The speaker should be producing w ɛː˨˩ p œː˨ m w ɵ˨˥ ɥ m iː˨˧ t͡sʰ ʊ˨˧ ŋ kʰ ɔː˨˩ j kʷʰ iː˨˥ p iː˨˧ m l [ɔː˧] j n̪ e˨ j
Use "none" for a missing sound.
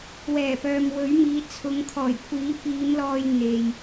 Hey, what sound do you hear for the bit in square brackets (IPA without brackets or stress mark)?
ɔː˧